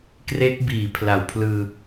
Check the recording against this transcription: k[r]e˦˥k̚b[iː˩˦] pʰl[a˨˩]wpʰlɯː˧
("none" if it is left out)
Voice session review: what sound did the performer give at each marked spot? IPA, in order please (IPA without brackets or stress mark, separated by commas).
r, iː˩˦, a˨˩